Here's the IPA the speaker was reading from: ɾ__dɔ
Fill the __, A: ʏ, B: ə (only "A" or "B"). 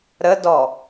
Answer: B